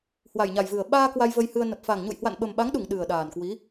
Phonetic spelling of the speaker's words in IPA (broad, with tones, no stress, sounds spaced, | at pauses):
h w a˨˩ j ɲ a˨˩ j v ɨ˨˩ ə̯ ɓ aː˧ k w a˧ j v ə˧ j h ɨ˧ ə̯ n ə˨˩ p̚ f a˨˩ ŋ ɲ ṵ˧˨ j h w a̰˧˨ n ɓ ə˨˩ m ɓ a˨˦ ŋ ɗ u˧˩ ŋ ɗ ɨ˨˩ ə̯ ɗ aː˨˩ n k w i˨˦